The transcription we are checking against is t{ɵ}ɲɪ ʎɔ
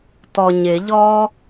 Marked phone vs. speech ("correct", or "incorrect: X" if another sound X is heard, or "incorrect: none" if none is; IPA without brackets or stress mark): incorrect: ɔ